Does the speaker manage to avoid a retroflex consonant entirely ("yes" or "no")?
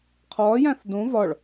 no